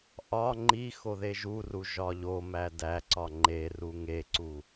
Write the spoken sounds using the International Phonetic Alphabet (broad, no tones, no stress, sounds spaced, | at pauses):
ʔ ɒ ŋ͡ǃ i x o ð e ʒ u r u ʒ ɒ ʎ o m æ d æ ǀ ɒ ŋ͡ǃ e r u ŋ e ǀ u